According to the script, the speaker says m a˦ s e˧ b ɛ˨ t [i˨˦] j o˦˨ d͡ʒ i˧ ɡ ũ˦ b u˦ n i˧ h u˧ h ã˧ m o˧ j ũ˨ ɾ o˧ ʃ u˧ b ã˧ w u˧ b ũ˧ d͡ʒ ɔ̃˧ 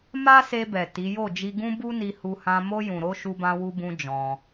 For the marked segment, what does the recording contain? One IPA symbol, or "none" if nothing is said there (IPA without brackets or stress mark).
i˨˦